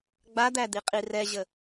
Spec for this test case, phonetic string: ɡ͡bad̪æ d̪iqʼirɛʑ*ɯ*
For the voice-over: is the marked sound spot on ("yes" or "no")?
no